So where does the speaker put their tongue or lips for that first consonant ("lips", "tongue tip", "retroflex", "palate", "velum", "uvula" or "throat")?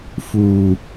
lips